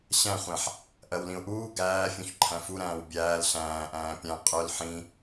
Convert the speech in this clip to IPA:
ɕ æ̃ χʷ æ̃ ħ | ʔ ɜ w l ĩ ʊ̯ ʔ uː ɡ æː fʲ ũ ç ǃʰ æ̃ f u ɾ æ̃ː w bʲ æː l ɬ æ̃ː ʔ æ̃ː pʲ æ̃ qʼ œ l ħ ĩ

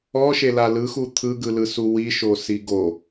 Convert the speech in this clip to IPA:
ɔ ʃ e l a l ɯ x u t̪ʰ ɯ ɡ ɯ l ɯ s u w i ʃ o s i ɡ o

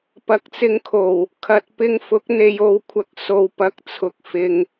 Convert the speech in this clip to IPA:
p ɐ˨˥ k̚ t͡s ɪ˧ ŋ kʰ o˨˩ w | kʰ ɐ˧ t̚ p ɪ˥ ŋ f ʊ˨˥ k̚ n̪ e˨ j o˨ w kʷʰ ɐ˨˥ k̚ s o˨ w p ɐ˨˥ k̚ t͡sʰ ʊ˨ k̚ f ɪ˨ ŋ

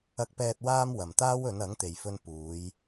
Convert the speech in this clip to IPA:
ɐ˧ k̚ p ɛː˧ t̚ w aː˥ m w ɐ˨ m t̪ aː˥ w ɵ˨˧ n ɐ˨˥ ŋ t̪ e˨ j f ɵ˧ n p uː˨˧ j

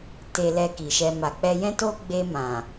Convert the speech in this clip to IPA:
t e˧ l ɛ˧ k i˨ ʃ ɛ˧ m a˨ k͡p ɛ˧ j ɛ̃˦ t o˦ ɡ͡b e˧ m ã˨

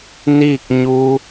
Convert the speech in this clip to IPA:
n iː˥˨ k̚ ɲ u˧

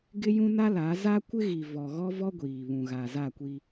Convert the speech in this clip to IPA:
ɡ ɪ˦ j ũ˦ n a˦ l a˨˦ z a˦ kʷ ɪ˦ ɣ i˨ v ɔ˨ ɣ ɔ˦ v ɔ˦ ɡʷ iː˨ β ũ˨ ɣ a˨ z a˦˨ kʷ i˦

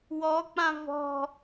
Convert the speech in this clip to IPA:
w ɔ k͡p ã v ɔ̤

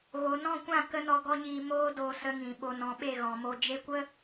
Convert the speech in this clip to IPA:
ɣ o˨ n ɔ̃˦˨ kʷ ã˦˨ k ə˦ n ɔ˧ ɡ ɔ˦ ɲ iː˧ m oː˦ d oː˧ s ə˧ ŋ ĩ˨ ɓ o˨ n ɔ̃˨ ɓ e˦˨ ɣ ɔ̃˨ m o˧ d͡ʒ e˦ kʷ ə˦

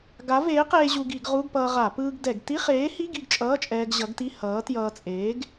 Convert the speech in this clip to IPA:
ɡ a˨˥ v eː˨˥ q eː˧ ʑ u˧ ɡ i˧˩˧ ɡ ʁ u˧˥˧ ɡ p ʌː˧ ʁ a˧˩˧ p ɯː˧ ɡ d ɛ˧˩˧ ɡ t i˧˥˧ χ eː˨˥ h i˧˥˧ ɡ i˥˨ ɡ t͡ʃʼ ʌː˧˥˧ t͡ʃʼ ɛː˧ ɡ ʑ ʌ˨˥ ɡ t i˧˥˧ h ʌː˨˥ t j ʌː˧ t͡sʼ eː˨˥ ɡ

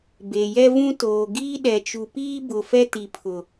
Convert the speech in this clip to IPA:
b e˨ j ɛ˦ v ũ˦ t oː˨ ɡ iː˦ ɗ ɛ˨ t͡ʃ u˨ p iː˦ b ʊ˨ f ɛ˦ t i˨ pʰ ʊ˨

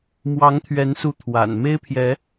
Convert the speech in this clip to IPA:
m w ɑ˨˦ ŋ t̪ʰ ɥ ɛ˨˦ n s u˨˦ t̪ʰ w a̰˨˩ n m e˦ ɪ̯ pʰ j ɛ˨˦

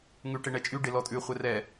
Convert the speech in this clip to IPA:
ŋ ʉ ʈ e ɳ ɛ t͡ʃʼ y ɖ e l ɔ tʼ ʉ χʷ ɛ r ɛ

